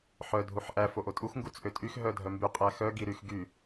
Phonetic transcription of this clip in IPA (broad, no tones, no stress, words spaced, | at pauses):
ħœ dʱuħʔæ foʔotʼux ŋɡut͡sʔøtʼyx ɦœdʱœmby qʼæxœ ɡiɾyx ɡy